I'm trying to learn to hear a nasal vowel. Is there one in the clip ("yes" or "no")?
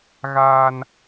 no